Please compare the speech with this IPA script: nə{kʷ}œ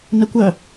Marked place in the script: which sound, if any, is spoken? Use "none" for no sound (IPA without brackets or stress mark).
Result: kʷ